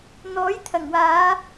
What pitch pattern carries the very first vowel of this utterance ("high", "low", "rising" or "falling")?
rising